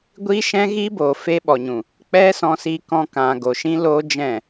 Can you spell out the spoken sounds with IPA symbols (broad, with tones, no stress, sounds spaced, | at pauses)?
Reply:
ɡʷ iː˦ ʃ ɛ̃˦ ɣ iː˦ b oː˨ f e˦ ɓ ɔ˨ ɲ ũ˨ | k͡p ɛ˦ s ɔ̃˧ s iː˧ k ɔ̃˧ k ã˨ ɡ o˨ ʃ ĩ˦ l oː˦ d͡ʒ ɛ̃˦˨